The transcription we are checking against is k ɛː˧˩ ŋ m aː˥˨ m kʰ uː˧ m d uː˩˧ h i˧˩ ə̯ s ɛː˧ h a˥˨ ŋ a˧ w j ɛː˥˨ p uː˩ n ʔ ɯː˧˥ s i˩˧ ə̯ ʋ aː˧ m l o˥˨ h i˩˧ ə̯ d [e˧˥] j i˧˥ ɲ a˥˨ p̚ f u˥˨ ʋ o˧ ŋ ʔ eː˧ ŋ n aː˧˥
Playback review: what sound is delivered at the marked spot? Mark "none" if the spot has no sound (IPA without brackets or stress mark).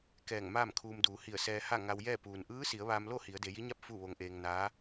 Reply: e˩˧